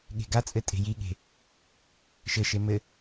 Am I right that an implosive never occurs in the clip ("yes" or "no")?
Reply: no